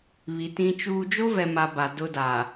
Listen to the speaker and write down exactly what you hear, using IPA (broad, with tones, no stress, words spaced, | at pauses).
βi˨tĩ˦t͡ʃuː˦ d͡ʒo˦vɛ˨ma˨ ba˨dʊ˦da˨